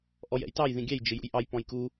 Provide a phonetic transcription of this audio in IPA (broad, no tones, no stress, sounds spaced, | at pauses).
ʔ ɔ j ɛ̰ j t ɑ j ð ĩ ɡʲ æ j d͡ʒ ɪ j ṵ j ʔ ɑ j p ɔ̃ j k u